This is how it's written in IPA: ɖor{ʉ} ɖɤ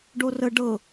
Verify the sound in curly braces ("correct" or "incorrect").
incorrect